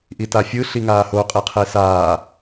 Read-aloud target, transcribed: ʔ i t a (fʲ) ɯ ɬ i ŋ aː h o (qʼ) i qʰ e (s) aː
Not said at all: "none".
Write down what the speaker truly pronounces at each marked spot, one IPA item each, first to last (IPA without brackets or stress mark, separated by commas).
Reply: fʲ, qʼ, s